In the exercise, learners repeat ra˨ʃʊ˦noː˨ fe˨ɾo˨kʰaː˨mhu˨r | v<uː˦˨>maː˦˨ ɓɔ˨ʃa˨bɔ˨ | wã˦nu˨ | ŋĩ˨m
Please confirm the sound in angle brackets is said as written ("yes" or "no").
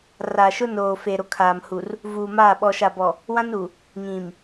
no